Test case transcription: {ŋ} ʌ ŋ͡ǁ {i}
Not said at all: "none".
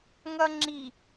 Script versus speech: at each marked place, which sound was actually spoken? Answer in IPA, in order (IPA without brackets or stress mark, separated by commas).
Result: ŋ, i